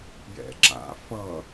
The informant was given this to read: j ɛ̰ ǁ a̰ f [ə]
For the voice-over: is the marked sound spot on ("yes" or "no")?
no